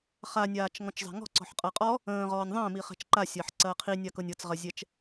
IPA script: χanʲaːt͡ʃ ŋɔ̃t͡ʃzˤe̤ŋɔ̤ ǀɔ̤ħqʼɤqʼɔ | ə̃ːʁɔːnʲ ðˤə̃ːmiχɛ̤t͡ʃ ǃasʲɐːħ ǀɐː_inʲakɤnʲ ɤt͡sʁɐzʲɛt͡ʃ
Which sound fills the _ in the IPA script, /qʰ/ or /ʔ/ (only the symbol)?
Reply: qʰ